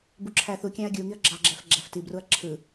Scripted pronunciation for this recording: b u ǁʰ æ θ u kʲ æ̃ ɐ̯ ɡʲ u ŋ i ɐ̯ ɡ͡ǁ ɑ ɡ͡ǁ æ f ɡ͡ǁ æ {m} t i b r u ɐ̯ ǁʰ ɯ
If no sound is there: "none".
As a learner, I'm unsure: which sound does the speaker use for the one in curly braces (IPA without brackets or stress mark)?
f